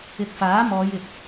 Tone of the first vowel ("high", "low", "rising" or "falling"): low